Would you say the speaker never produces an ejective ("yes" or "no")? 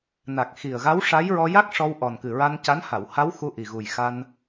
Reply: yes